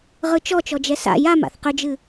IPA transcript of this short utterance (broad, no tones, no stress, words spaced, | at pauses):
ʁɯt͡ʃɔt͡ʃɔd͡ʒɛ sa̰ jam a̰θqʏd͡ʒɨ